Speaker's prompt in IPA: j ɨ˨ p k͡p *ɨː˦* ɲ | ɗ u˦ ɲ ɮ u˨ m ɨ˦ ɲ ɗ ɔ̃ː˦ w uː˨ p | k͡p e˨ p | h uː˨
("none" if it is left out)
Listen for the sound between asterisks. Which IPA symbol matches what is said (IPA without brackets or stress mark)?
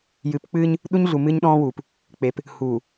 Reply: ɨː˦